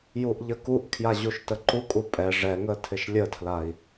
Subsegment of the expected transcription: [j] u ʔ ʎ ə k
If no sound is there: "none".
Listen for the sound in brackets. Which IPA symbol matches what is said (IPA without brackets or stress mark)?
j